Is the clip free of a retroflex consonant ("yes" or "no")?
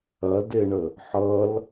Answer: no